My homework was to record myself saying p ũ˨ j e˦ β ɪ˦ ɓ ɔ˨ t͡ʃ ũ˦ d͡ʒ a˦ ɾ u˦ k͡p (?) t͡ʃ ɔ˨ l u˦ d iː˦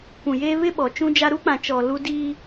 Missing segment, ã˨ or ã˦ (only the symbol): ã˨